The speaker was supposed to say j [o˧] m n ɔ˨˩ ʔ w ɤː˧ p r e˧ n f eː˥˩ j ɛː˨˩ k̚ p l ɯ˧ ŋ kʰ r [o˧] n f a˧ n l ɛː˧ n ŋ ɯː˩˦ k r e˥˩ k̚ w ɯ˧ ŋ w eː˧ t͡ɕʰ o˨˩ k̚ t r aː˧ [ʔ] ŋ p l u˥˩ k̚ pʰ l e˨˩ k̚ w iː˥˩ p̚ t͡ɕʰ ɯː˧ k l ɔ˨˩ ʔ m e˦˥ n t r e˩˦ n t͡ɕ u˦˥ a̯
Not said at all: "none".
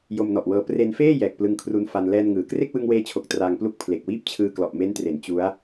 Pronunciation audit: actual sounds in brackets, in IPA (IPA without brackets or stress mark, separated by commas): o˧, u˧, none